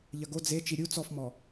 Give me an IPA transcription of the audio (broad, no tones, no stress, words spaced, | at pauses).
ʎɐɡo d͡ze t͡ʃiɾʲu t͡sɔfmɔ